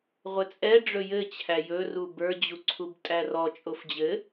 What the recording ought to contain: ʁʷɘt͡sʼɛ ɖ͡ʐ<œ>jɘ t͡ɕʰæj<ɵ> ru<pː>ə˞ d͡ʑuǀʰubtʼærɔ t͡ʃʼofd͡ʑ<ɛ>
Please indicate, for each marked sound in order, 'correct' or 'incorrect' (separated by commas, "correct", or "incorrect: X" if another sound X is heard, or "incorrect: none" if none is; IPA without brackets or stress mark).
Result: incorrect: ɵ, correct, incorrect: b, incorrect: ɘ